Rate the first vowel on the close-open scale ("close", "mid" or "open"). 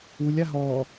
close